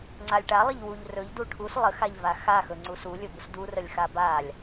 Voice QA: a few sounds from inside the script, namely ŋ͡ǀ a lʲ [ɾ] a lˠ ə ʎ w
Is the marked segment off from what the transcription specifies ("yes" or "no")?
yes